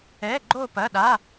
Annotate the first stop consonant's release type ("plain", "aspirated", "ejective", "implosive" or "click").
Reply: click